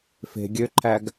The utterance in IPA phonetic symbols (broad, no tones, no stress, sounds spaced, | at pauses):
f e̤ ɡʲ ø ǃʰ æ ɡ